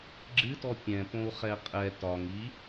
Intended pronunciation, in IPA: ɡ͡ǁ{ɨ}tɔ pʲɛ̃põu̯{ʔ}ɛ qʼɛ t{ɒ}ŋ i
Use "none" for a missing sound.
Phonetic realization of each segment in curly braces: ɨ, χ, ɒ

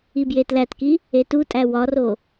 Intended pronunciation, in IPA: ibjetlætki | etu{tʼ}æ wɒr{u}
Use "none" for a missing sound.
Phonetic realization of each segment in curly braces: tʼ, o

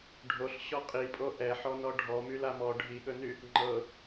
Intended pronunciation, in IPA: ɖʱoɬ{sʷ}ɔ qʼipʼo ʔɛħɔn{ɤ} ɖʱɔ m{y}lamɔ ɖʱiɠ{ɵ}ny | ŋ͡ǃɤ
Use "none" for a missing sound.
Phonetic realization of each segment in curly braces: ɕ, ɔ, y, ɵ

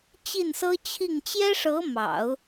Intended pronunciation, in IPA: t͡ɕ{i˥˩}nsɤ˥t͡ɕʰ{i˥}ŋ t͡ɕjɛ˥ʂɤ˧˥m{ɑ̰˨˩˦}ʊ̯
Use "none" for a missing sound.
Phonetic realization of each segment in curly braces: i˥˩, i˥˩, ɑ̰˨˩˦

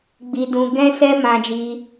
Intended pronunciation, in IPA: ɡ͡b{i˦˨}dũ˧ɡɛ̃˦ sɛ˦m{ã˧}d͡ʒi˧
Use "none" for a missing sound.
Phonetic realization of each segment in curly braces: i˧, ã˧

